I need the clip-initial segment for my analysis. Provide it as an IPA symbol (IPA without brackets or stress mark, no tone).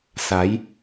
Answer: s